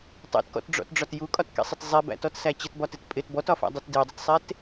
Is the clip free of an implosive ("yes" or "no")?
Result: yes